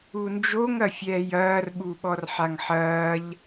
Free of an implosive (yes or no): no